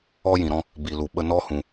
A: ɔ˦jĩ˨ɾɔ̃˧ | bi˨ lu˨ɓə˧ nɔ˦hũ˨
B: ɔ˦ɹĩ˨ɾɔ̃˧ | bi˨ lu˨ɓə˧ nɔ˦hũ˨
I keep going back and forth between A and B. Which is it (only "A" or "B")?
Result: A